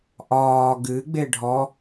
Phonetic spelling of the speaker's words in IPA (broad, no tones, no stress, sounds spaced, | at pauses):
ʔ ɒː ɡ ɨ ɡ͡b e ɖʱ ɔ